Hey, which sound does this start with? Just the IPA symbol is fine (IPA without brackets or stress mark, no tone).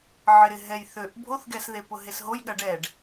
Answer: ʕ